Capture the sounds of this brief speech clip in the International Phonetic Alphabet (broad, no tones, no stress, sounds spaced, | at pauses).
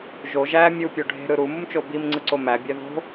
ʒ o ʒ æ mʲ u pʲ o ɖʱ e̤ ɾ ɯ ɾ u m u m t͡ʃ o b i m ŋ͡ǀ ɯ ǀ o m æ bʲ æ ð o̤